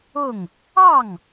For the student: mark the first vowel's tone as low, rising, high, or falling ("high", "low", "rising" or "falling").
falling